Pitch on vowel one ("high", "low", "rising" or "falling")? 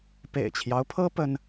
low